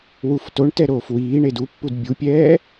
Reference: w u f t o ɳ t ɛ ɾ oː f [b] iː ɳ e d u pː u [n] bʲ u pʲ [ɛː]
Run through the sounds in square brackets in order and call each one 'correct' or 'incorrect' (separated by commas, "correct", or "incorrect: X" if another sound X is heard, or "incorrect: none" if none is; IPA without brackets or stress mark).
incorrect: w, incorrect: d, correct